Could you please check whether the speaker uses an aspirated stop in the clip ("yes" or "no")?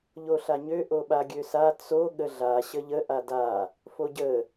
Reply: no